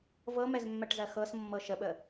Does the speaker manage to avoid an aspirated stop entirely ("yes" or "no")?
yes